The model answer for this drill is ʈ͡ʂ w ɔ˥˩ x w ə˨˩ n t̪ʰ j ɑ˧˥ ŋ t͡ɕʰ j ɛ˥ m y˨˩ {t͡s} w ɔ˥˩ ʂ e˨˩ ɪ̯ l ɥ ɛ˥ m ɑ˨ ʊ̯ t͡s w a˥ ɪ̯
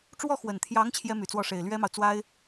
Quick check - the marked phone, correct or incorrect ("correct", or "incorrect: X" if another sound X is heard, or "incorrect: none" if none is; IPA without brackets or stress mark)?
correct